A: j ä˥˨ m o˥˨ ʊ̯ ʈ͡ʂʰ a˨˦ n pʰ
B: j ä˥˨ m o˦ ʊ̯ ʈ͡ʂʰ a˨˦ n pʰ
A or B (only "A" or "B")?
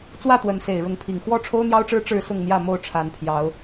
A